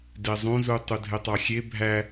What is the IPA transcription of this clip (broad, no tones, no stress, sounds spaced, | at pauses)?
d e zˤ ũ z u tˤ u dʱ e tˤ ɑ xʲ e bʱ æ